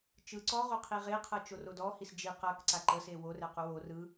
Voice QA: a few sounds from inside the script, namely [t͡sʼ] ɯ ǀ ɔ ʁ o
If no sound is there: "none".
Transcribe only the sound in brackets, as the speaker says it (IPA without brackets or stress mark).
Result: t͡ʃ